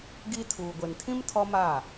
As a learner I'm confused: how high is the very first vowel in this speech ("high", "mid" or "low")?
high